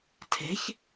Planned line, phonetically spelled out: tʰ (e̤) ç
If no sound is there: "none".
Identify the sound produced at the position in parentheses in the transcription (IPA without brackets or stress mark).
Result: e̤